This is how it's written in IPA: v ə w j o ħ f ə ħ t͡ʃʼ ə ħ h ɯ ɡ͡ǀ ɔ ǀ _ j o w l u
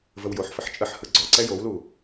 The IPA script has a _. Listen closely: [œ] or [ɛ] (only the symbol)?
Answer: ɛ